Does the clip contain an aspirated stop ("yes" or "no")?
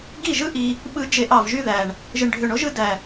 no